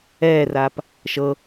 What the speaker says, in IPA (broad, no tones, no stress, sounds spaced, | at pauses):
ɛː r aː p | ʃ ɤ